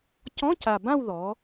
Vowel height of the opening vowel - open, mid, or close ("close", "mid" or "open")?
mid